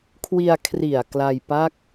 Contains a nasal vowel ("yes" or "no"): no